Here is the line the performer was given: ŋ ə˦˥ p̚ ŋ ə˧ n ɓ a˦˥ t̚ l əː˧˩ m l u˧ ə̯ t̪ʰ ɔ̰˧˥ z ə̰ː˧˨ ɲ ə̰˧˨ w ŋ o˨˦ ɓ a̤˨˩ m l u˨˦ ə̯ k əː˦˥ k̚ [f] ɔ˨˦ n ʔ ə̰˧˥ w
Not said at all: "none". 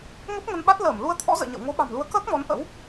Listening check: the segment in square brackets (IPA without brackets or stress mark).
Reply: m